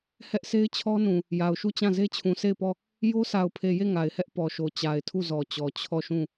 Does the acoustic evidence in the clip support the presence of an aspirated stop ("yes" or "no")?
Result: yes